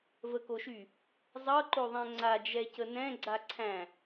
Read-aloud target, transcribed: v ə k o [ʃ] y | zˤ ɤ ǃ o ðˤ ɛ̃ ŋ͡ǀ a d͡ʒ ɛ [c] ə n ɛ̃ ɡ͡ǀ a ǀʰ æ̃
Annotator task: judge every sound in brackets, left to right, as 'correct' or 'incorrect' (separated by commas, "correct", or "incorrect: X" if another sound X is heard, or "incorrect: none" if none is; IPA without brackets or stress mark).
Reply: correct, correct